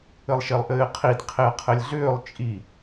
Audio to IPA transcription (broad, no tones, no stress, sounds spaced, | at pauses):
ɘ lˠ ʃ e lˠ ʔ ɘː qʰ i d qʰ e ɐ̯ qʰ ɘ lʲ ɮ ʏː lˠ t͡ʃʼ i